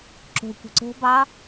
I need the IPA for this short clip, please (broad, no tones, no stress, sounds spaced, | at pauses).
ǁ o̤ kʷ i̤ ǀ o̤ b ɑ